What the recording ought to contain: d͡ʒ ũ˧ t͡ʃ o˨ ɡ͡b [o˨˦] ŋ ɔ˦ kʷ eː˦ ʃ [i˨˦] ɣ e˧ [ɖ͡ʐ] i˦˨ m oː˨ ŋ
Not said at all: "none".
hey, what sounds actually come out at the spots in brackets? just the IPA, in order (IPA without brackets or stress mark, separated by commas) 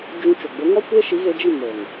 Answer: o˨˦, i˨˦, d͡ʒ